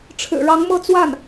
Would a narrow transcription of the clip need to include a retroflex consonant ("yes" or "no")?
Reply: yes